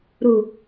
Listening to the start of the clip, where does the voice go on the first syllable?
low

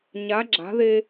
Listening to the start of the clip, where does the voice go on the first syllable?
rising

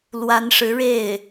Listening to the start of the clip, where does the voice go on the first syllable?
rising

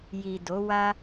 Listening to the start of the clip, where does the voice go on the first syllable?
low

